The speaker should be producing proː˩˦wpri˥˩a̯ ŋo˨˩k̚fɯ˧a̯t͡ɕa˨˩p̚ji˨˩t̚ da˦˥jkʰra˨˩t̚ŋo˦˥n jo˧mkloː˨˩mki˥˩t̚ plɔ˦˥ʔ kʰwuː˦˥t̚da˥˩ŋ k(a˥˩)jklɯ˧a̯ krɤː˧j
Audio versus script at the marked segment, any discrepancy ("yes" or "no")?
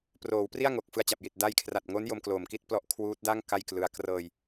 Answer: no